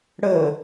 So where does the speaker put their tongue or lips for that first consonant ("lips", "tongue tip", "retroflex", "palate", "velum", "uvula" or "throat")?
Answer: retroflex